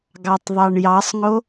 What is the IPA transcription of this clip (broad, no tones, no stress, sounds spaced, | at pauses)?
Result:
ɡ ɑ tˤ ðˤ ɑ ɳ j ɑ sˤ ŋ o